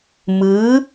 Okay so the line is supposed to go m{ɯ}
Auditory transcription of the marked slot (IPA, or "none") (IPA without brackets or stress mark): ɯ